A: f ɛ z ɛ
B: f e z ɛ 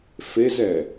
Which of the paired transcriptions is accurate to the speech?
B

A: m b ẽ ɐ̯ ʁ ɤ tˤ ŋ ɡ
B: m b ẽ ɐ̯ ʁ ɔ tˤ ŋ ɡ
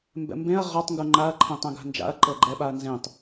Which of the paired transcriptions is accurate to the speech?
B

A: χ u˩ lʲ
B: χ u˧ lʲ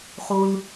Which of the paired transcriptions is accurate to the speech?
B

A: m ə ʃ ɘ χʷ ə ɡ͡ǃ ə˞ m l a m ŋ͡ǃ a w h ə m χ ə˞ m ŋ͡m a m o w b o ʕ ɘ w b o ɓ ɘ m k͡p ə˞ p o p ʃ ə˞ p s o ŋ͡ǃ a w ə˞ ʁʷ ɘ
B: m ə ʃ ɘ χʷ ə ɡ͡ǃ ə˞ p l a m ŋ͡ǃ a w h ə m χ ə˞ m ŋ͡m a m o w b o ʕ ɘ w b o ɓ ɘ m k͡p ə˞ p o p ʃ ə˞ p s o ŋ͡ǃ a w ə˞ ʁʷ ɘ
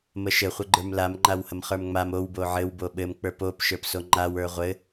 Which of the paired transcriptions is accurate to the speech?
A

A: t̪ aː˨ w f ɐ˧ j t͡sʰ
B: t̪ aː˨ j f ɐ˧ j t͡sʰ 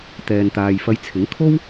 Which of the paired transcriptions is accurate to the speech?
B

